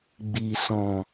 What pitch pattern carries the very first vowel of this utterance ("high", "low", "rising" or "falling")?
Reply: low